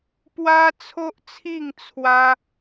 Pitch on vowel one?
high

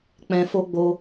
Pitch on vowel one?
low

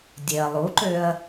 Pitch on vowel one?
low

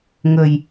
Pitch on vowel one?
low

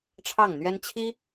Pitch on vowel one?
falling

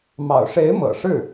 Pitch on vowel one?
low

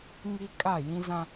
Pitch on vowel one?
high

